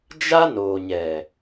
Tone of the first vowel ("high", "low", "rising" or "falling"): high